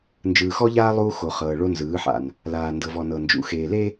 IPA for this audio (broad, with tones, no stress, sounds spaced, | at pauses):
n d͡ʒ ɯː˨ x ɔ˦ ʎ aː˦ lˠ uː˦ x o˨ χ ɤː˨ ɭ o˦ n z ɯː˨˦ ħ a̰˨ n | l aː˨ n d ɤ˨ v ɔ˨ n ɤ˨ n d͡ʒ ṵ˨ x eː˨ l e˦